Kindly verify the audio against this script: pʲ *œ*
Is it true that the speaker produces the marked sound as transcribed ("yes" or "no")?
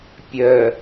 yes